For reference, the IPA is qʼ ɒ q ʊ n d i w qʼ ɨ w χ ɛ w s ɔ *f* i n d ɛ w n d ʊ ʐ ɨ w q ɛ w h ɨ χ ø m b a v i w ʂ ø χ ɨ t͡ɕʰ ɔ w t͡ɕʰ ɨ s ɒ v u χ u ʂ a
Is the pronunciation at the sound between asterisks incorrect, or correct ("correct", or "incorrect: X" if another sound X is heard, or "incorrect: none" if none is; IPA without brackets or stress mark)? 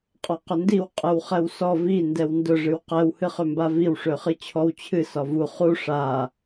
incorrect: v